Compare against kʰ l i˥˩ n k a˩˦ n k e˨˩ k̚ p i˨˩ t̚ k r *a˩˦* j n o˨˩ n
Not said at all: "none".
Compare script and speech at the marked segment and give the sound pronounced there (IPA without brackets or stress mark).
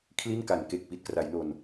a˩˦